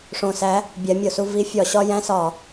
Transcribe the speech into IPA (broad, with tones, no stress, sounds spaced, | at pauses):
ʂ õ˨˩ s æ˨˦ | bʲ æ˨˦ mʲ o˨˩ s u˦ v i˨˦ fʲ ɒ˧˩˧ ɕ ɒ˦ j æ̃˦ s ɒ˧˩˧